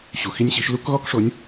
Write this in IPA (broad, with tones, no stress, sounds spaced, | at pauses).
ɕ u˨ x i˦ nʲ ɕ i˨˦ ʃ l u˦ k ɣ ɔ˦ k ʂ o˨˦ nʲ